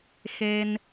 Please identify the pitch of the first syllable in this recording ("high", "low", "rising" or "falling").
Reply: high